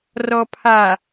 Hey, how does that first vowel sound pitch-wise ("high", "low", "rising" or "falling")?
low